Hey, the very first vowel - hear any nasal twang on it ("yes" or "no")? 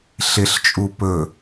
no